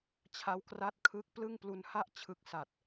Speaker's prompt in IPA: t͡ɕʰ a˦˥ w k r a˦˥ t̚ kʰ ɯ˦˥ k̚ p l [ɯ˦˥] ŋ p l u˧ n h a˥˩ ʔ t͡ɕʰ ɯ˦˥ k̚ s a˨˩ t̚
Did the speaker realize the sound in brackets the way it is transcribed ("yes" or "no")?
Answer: no